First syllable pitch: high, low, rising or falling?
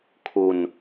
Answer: low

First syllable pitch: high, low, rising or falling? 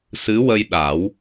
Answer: rising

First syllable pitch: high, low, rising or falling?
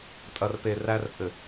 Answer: low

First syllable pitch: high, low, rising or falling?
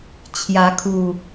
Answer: rising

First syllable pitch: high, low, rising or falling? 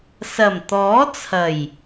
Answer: low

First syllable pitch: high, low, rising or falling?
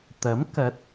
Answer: rising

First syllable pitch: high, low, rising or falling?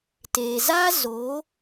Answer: low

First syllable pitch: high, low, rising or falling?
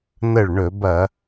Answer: falling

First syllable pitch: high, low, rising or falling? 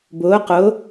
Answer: rising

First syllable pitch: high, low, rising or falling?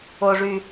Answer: low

